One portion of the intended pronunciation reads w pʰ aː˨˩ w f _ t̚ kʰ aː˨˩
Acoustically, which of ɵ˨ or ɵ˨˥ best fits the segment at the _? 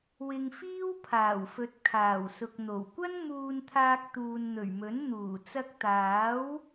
ɵ˨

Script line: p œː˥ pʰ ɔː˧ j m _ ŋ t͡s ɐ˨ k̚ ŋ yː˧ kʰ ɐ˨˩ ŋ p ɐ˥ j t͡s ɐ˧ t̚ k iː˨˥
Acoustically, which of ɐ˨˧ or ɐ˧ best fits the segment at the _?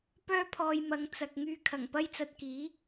ɐ˨˧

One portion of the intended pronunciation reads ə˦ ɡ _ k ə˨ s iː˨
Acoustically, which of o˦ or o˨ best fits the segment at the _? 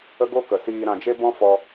o˦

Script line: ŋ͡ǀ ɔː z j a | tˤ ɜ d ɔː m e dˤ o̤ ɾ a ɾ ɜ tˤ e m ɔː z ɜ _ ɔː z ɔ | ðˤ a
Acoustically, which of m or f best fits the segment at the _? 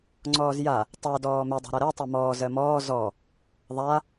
m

